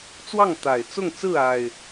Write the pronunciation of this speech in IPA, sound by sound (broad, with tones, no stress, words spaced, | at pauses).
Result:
t͡swɑ˥˨ŋt̪a˨˩ɪ̯ t͡sʊ˥˨ŋt͡sɹ̩˥˨a˨˩ɪ̯